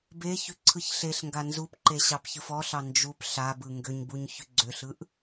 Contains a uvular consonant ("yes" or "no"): no